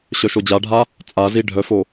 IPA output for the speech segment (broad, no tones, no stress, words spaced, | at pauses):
ɕœʃod͡ʑaɖʱa | t͡sʼazi ɖʱœfo